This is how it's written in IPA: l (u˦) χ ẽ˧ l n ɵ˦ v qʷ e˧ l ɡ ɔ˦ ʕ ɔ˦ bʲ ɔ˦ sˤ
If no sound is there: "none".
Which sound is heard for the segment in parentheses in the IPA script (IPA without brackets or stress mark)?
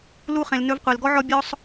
u˦